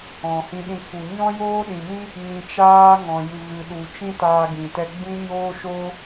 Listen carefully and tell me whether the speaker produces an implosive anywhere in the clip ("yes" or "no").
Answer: yes